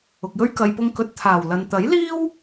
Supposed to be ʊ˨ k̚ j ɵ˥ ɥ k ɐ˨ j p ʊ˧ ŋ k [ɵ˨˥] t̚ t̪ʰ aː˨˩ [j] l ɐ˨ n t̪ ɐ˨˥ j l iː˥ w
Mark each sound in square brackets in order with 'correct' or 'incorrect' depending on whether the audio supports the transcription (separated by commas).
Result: correct, incorrect